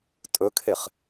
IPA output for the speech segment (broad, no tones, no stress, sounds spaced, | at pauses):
tʼ ɵ kʰ e χ